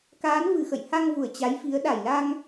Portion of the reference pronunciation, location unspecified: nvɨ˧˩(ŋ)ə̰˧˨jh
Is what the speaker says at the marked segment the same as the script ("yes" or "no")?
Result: no